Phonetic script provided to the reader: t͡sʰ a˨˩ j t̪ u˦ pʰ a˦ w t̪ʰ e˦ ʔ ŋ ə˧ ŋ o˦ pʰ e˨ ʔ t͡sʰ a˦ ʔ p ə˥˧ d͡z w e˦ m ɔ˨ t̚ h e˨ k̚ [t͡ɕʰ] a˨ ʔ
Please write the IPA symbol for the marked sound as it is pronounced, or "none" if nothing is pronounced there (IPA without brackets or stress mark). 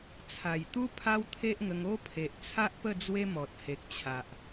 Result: t͡ɕʰ